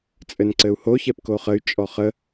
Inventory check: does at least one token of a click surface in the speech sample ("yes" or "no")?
yes